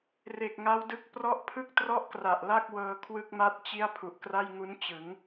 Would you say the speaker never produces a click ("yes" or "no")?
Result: yes